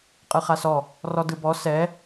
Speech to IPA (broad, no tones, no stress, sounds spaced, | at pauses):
qʼ ɯ χ a s ɔ | r ɔ d ɯ b ɔ s ɛ